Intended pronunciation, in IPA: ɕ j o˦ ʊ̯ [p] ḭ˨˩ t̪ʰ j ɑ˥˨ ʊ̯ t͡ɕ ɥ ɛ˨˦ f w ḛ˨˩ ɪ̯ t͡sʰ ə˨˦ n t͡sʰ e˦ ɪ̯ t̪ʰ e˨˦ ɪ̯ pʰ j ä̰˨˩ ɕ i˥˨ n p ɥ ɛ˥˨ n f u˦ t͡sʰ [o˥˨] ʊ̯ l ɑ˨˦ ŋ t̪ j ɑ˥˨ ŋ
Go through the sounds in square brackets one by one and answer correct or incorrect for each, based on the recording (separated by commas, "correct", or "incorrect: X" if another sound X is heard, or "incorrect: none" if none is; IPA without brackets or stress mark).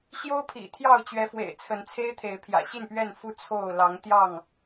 incorrect: pʰ, correct